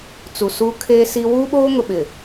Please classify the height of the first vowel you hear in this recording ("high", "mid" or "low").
high